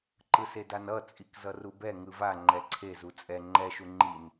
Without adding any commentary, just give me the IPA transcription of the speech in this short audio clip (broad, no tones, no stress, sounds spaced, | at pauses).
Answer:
ǃ ɯ s e d a n ʌ t͡sʼ i k z ʌ r u b ɛ ŋ ɯ v a ŋ͡ǃ ɛ ǀʰ e z u t͡sʼ ɛ ŋ͡ǃ ɛ ʃ u ŋ͡ǃ i n